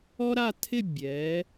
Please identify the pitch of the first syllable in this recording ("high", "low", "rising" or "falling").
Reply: high